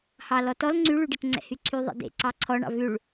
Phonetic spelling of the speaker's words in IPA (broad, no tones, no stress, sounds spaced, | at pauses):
h ɑ l ɔ t ɔ l ŋ͡ǀ y ɭ y ɖ e t ŋ͡ǀ ɛ̰ h y ǀʰ y ðˤ ḛ d ḛ ǀ ɑ ǀʰ ɔ ɳ ɑ̰ v ʉ ɭ